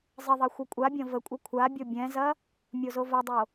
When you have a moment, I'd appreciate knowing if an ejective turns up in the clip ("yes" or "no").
yes